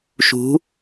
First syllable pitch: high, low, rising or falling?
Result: rising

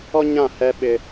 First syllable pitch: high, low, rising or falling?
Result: high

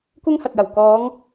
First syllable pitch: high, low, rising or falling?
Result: high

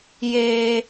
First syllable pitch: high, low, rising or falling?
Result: high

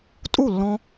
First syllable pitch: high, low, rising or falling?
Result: falling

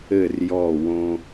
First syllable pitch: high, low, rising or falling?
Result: falling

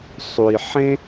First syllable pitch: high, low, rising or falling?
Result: low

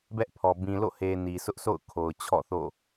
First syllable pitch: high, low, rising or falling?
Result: high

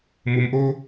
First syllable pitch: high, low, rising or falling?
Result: low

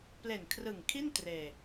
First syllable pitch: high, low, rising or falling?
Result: low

